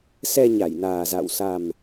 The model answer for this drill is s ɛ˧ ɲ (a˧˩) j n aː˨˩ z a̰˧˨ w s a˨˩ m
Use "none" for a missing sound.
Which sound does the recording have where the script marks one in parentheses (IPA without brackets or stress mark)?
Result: a˧˩